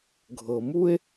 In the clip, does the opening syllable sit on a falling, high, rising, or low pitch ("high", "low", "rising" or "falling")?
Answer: low